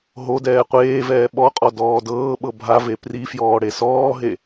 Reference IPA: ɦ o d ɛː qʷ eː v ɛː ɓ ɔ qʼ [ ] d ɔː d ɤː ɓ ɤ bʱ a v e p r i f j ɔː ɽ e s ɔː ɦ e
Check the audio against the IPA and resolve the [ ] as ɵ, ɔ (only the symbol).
ɔ